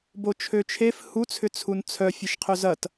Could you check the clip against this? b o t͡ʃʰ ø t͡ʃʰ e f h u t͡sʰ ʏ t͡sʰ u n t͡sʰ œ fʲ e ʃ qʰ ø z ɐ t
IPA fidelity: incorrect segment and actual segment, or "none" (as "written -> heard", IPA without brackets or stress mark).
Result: none